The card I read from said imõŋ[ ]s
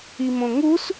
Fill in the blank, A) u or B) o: A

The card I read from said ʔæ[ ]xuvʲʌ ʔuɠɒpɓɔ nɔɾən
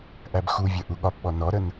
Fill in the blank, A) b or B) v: A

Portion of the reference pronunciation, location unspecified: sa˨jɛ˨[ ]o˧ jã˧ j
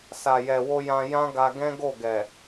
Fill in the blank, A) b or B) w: B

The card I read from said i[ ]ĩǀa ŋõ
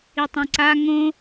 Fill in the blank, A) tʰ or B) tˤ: B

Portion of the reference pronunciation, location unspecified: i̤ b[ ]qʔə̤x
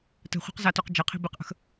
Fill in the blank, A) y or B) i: B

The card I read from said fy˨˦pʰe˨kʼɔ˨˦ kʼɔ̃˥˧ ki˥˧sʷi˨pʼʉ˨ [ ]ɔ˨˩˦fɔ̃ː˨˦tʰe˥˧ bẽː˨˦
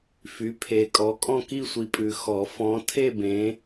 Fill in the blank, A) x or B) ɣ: A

